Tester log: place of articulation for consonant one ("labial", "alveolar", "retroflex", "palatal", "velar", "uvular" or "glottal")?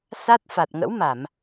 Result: alveolar